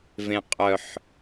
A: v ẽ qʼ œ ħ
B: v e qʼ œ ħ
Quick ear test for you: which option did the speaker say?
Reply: A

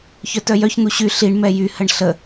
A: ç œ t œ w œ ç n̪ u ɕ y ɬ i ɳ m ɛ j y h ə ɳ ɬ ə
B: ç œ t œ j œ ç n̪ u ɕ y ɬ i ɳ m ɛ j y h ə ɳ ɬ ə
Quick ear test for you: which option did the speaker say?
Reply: B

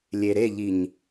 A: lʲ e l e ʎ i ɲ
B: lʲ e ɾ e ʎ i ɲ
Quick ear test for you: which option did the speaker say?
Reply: B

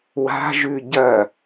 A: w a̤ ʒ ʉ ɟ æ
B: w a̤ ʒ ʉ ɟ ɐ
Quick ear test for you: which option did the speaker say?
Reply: B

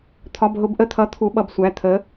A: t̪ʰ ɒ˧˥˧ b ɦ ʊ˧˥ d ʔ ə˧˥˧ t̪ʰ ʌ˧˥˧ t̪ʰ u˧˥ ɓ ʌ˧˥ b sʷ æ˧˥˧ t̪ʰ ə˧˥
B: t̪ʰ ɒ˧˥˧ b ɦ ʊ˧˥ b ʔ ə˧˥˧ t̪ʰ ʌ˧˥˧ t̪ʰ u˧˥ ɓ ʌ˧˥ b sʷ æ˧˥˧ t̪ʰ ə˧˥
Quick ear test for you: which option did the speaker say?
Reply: B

